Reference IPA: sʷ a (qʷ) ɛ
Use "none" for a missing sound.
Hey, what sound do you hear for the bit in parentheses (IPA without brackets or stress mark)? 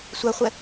χʷ